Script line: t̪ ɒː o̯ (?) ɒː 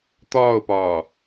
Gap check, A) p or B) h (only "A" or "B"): A